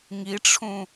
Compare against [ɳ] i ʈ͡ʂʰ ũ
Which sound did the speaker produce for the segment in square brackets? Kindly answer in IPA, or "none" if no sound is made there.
ŋ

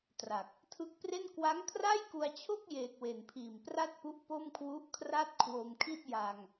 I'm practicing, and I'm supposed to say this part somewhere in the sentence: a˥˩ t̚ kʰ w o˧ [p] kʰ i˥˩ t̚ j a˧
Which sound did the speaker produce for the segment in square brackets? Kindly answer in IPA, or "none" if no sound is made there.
m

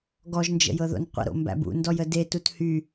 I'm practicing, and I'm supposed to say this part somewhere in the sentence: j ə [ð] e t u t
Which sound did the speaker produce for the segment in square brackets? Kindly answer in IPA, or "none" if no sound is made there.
d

